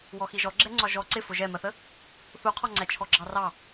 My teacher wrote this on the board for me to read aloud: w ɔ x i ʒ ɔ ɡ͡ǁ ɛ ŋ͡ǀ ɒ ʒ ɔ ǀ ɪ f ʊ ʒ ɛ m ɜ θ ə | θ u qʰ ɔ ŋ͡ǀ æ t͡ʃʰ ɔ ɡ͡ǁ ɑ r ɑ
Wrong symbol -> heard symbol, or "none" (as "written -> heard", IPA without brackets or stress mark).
none